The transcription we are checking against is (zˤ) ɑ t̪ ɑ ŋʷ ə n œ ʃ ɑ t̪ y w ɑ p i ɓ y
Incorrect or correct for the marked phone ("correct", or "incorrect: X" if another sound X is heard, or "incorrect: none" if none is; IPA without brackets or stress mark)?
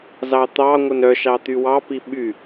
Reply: incorrect: z